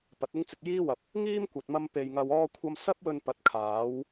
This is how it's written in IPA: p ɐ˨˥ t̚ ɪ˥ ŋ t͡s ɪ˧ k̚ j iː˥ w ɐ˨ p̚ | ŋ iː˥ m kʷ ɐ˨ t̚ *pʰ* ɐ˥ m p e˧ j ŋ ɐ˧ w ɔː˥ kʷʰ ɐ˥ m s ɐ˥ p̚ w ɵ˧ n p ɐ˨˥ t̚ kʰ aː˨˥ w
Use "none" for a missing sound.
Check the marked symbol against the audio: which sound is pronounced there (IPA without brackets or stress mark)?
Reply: m